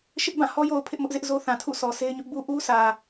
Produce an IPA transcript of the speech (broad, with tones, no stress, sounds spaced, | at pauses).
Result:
ʃ ɪ˦ ʔ b ã˦˨ h ɔ˦ j o˨ ʊ̯ pʰ ɪ˦ ʔ m ʊ˦ ʔ z ɪ˦ ʔ z o˦ θ ã˨ tʰ ṵ˦˨ sʰ ɔ˨ sʰ e˦ ɪ̯ ɲ ʊ˦ ʔ b u˦ ʔ u˦ sʰ ä˨